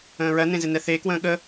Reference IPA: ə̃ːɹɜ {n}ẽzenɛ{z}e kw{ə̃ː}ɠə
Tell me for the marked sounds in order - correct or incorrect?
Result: correct, incorrect, correct

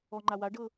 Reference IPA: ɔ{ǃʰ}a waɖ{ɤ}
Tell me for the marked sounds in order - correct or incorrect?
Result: incorrect, correct

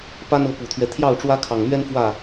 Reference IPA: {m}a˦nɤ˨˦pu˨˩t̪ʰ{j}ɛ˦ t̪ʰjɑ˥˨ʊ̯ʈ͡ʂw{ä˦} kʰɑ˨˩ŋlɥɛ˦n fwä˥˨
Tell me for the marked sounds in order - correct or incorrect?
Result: incorrect, incorrect, correct

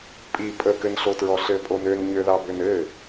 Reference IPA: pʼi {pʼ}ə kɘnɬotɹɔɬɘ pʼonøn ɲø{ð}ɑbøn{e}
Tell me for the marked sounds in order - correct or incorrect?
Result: correct, correct, incorrect

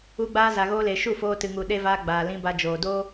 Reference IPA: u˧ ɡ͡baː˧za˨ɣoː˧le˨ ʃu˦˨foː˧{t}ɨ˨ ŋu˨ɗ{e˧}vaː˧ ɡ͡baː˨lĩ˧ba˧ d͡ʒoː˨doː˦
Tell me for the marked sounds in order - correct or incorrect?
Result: correct, correct

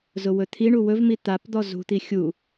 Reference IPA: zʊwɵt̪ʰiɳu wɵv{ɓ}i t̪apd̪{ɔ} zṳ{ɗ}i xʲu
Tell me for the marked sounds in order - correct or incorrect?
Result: incorrect, correct, incorrect

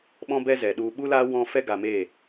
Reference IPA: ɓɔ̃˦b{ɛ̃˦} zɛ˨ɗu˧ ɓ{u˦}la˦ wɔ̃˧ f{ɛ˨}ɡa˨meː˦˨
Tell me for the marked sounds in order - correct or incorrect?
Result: incorrect, correct, incorrect

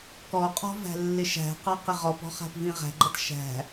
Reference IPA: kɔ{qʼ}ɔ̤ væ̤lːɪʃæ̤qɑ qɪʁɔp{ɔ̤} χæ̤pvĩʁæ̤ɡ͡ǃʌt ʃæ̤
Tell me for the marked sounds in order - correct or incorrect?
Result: correct, correct

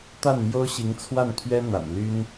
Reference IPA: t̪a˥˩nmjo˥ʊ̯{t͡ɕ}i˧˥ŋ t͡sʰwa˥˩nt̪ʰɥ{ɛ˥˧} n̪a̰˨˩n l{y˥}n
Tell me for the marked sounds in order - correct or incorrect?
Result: incorrect, incorrect, correct

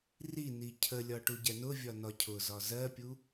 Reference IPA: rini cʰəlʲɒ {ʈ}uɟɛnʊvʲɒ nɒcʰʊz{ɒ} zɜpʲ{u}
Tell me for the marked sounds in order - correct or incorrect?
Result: correct, correct, correct

